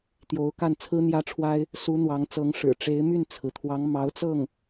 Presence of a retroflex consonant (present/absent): present